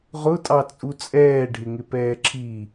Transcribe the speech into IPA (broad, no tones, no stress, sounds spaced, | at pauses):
ʁ ʊ tʼ ɑ t͡sʼ u t͡sʼ ɛː ɖʱ ɪ ŋ ɪ p ɛː ǁ i